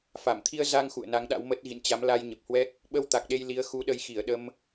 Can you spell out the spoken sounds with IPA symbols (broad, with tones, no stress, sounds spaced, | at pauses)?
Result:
f a˧˩ m t̪ʰ i˧ ə̯ z a˧ ŋ x ṵ˧˨ ə̯ n a˨˦ ŋ ɗ a̰˧˥ w m ə˦˥ t̚ ɣ ḭ˧˨ n t͡ɕ a˨˦ m l a˧ j ɲ ə˨˩ p̚ h w ɛ˦˥ k̚ | ɓ ə˧ w t̪ a˨˩ k̚ ɗ e˧ j l i˨˦ ə̯ x u˨˦ ɗ ə˨˦ j x i˧˩ ə̯ ɗ ə˧ m